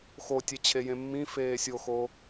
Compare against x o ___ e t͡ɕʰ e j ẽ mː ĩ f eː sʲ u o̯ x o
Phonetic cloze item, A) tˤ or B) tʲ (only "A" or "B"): B